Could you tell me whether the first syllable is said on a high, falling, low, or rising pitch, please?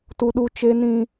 high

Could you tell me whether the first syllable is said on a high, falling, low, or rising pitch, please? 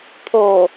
low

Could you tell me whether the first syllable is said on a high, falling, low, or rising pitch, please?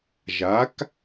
rising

